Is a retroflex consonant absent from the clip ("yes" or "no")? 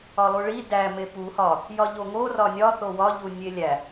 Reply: no